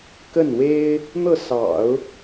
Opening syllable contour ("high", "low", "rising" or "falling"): falling